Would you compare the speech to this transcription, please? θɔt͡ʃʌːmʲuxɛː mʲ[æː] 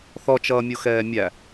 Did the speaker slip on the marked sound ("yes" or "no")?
yes